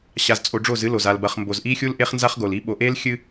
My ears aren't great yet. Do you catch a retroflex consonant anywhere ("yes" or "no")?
yes